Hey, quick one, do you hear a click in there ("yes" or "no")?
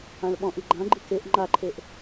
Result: yes